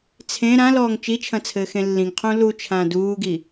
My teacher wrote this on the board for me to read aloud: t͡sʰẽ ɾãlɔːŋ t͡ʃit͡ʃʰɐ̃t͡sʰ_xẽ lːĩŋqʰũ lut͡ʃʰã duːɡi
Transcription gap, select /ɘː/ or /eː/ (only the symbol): ɘː